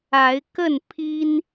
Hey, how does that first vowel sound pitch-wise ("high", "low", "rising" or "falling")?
rising